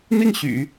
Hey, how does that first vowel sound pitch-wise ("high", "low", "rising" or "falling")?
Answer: falling